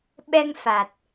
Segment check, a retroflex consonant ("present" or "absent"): absent